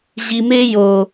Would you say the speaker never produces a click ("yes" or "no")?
yes